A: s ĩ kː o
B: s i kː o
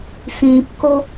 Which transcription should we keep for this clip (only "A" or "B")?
A